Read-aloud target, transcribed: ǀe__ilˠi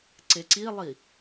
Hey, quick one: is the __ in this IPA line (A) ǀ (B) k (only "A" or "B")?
A